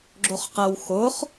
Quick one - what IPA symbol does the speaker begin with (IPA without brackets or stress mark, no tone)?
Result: ɡ͡ǁ